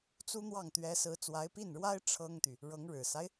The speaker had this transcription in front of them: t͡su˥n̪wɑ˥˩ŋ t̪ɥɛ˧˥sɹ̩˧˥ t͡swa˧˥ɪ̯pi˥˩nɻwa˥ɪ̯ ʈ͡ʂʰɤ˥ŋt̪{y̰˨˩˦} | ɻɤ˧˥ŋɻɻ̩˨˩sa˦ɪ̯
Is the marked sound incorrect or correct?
incorrect: y˨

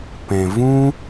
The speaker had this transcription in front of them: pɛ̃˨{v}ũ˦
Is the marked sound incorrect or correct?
correct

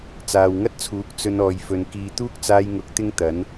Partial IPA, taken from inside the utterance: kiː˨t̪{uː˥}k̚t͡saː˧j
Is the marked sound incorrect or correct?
correct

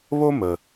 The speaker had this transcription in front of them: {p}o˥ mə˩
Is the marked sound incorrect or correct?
incorrect: β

